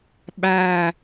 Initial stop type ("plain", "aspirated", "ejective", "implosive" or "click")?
implosive